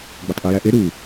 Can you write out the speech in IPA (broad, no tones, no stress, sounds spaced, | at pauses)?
ɡ͡b o tˤ ʔ i j æ ʔ e ɾ u